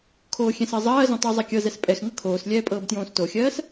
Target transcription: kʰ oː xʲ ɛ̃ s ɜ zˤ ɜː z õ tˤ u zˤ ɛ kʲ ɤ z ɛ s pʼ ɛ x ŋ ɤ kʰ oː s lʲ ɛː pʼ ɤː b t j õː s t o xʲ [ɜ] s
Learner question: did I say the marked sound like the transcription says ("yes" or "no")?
no